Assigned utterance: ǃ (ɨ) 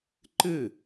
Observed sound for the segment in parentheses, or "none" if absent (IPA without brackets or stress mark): ɨ